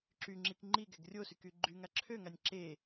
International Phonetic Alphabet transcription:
ǁyŋ͡ǁik ŋ͡ǃiɡɛɡ rʲosyky ɡ͡ǃyŋa ǁʰøŋanʲ ǁe

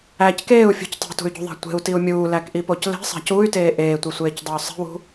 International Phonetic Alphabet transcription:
æc keːu̯fʲṳc tˤe̤tṳy̯ɟṳðˤæ̤ tʷe̤u̯tiu̯ mʲuːlækʔipoc le̤sˤæ̤c uy̯teː ʔeːtʷisʷeːcdˤey̯ sˤe̤wṳ

